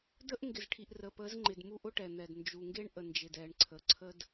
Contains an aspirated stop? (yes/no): yes